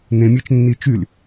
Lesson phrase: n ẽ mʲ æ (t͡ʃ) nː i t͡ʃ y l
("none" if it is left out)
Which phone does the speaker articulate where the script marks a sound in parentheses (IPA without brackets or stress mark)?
t͡ʃ